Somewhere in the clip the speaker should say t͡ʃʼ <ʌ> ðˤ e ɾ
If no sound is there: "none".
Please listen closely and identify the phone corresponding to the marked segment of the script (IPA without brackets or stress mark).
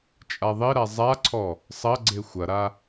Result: a